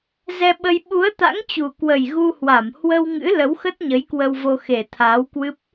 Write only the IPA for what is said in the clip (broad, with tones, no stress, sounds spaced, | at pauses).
z ɛ˧ ɓ ə˧ j ɓ u˨˦ ə̯ t̪ a̰˧˥ ŋ t͡ɕ u˨˩ k w ə˨˩ j ɣ u˧ h w a˧˩ m h w ə˧ w ŋ ɨ̰˧˥ l ə˨˦ w x ə˦˥ t̚ ɲ ə˨˦ j k w ə˧ w v o˧ x e˨˩ t̪ʰ aː˨˦ w k w ɨ˦˥ p̚